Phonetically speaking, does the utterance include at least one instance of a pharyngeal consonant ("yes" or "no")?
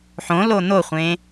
yes